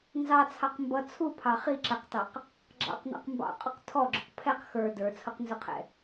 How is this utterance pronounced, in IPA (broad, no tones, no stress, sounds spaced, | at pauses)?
n z ɑ t͡sʰ ɑ q m b ʌ t͡sʰ u pʰ ɑ χ i ǁ æ q t ɑ q | ɡ͡ǁ ɑ̰ q n ɑ̰ q m b ɑ̰ qʼ ʊ q tʰ ɔ ɡ͡ǁ ʊ q pʰ ɛ q x ə˞ d ə˞ t͡sʰ ʊ q n z ʊ qʰ ɛ̰